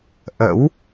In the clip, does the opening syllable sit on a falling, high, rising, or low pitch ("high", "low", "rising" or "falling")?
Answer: rising